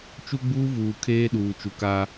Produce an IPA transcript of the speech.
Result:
t͡ʃ u˦ ɡ͡b uː˦ v uː˨ kʰ eː˦ ɗ uː˨ t͡ʃ u˨ k a˦

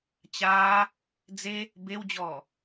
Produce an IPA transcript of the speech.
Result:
t͡ɕ aː | d͡z e | b e w d͡ʑ ɔː

